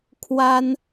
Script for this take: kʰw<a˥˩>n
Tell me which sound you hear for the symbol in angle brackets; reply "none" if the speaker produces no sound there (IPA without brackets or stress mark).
a˥